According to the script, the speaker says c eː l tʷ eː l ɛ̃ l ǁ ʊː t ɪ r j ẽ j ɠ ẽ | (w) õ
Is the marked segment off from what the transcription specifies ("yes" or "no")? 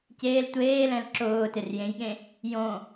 yes